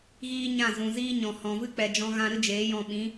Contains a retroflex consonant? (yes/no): no